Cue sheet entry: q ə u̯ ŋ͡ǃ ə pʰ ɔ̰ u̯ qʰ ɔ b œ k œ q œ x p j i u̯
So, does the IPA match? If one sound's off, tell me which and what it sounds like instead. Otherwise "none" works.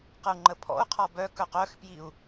none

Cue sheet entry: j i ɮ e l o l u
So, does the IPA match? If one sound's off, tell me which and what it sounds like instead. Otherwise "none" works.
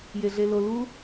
i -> e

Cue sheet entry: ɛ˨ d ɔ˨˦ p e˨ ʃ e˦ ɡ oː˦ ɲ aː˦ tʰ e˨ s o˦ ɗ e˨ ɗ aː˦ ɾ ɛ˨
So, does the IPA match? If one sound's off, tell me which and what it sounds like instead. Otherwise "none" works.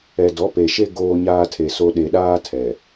ɾ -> tʰ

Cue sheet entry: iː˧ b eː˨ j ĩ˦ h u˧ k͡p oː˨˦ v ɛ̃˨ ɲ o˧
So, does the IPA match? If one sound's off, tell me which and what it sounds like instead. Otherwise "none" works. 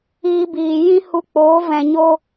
eː˨ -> iː˨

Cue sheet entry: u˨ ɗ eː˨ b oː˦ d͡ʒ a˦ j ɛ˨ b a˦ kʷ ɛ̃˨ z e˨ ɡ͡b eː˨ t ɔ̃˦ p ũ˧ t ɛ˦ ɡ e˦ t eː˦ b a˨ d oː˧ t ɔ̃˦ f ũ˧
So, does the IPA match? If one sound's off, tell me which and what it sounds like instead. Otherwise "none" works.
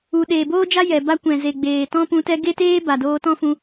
none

